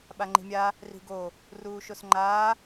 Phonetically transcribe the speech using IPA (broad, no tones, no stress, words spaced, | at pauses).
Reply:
ɓaŋ͡ǃi̤mʲa | ri̤ɡo | ruːʃosŋ͡ǃaː